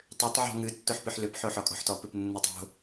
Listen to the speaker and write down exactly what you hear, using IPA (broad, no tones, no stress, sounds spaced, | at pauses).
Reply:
tˤ ʏ tˤ ʕ ɔ̤ ŋ ɨ tː o ħ p ʏ ħ l ʏ p ħ o ħ ɔ kʼ ɔ̤ ħ t ɔ p ɨ p nː ɯ tˤ o̤